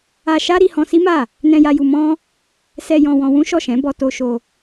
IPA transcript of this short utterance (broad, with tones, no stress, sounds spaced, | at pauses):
a˧ ʃ a˦ ɾ i˧ h ɔ̃˧ s i˦ m a˦˨ | n ɛ̃˧ j a˧ j u˧ m ɔ̃˦ | s ɛ˧ j ɔ̃˧ w ɔ̃˧ w ũ˦ ʃ ɔ˦˨ ʃ ɛ̃˨˦ b ɔ˧ t o˧ ʃ o˧